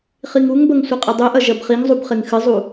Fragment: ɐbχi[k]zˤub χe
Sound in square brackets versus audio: incorrect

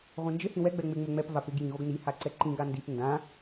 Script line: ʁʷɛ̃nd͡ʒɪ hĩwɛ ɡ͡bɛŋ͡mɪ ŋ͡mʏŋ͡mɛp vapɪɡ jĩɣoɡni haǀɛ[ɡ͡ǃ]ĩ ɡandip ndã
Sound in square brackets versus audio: incorrect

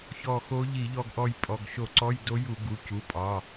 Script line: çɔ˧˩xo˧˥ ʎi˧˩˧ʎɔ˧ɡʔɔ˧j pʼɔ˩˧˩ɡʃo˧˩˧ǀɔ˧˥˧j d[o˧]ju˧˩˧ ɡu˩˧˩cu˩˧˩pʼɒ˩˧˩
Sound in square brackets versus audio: incorrect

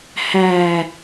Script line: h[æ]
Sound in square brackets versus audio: correct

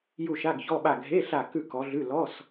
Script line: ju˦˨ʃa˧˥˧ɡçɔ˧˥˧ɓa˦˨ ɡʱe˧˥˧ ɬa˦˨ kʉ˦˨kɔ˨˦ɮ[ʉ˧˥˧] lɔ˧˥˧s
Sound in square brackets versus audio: correct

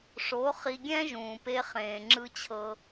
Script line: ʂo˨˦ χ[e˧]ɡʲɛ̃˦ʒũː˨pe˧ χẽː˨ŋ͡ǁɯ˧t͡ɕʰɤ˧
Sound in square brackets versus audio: incorrect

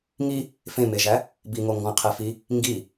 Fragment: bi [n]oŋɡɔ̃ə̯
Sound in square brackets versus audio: incorrect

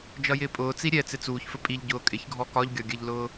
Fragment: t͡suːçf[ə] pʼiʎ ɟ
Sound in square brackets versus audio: correct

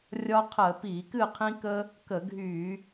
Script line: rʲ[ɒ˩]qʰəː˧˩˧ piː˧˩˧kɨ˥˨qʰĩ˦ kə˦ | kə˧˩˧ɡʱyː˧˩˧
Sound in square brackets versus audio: incorrect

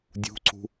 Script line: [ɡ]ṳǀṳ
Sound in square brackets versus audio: incorrect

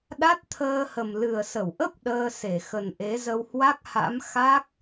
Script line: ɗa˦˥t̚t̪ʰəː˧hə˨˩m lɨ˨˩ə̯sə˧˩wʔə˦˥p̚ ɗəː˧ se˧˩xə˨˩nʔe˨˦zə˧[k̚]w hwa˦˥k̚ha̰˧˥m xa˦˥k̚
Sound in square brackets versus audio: incorrect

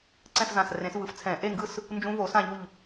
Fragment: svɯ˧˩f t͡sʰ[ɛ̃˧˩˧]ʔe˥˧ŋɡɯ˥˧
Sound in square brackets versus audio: correct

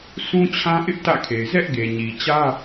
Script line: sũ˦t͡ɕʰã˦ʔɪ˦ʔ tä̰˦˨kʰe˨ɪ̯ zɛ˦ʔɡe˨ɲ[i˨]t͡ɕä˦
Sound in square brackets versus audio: correct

